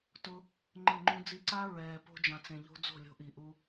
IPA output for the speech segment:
tʊ˧ | ŋ͡ǃɪ˦˨ŋ͡ǃũ˦ d͡zi˧ǀa˦ ɹɛː˨ po̤˧d͡ʒã˨t͡sẽ˨ʎo̤˧ d͡zo̤˦˨lʲo̤˧ʔi˨ʔu˧

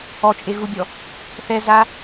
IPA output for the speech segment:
ɔt͡ʃʼeɣubʲɔ | θɛza

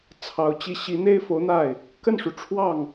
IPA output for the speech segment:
t͡sʰɑ˧˥ʊ̯t͡ɕi˥˩ ɕi˧˥n̪e˥ɪ̯fo˧˥ʊ̯n̪a˥˩ɪ̯ | kə˥˩nʂu˩ ʈ͡ʂʰwɑ˥˩ŋ

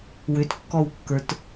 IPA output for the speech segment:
wʏtkːɔwkːə˞t

